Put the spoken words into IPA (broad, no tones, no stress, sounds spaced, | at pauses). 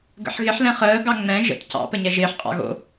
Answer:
ɡ ə̰ ħ ɣ ɪ ħ l ɛ̃ χ əː ɡ ɑ ŋ͡m ɛ̃ ʒ ə̰ t c ɑ̰ p ə ɲ ɛ ʒ ɪː ħ qʼ ɑ̰ ɣ o̰